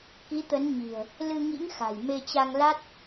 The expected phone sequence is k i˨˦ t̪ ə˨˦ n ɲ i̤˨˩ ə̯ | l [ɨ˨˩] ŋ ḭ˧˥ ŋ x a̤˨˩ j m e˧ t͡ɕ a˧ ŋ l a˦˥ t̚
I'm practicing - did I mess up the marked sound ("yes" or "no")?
yes